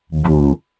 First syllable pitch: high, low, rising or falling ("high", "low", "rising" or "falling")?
low